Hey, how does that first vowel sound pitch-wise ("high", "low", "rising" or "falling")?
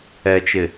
low